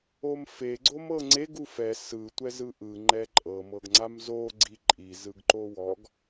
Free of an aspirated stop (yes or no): yes